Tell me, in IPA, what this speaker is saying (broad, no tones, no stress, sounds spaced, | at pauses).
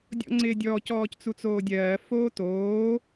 dʲ ɔ̰ ŋ͡ǀ ɪː dʲ ɔː c ɔː c t͡s u t͡s oː dʲ ɜː f oː t oː